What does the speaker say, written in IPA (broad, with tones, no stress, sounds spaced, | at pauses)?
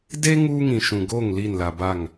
d e˦ ŋ uː˦ ŋ ĩ˨ ʃ ũ˨ ɡ o˦˨ ŋ l i˦˨ n l a˨ b a˦˨ ŋ